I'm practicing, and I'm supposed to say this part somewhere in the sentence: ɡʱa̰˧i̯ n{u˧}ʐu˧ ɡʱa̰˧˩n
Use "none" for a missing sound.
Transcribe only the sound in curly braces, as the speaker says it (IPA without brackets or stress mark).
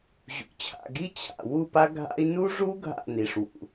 u˧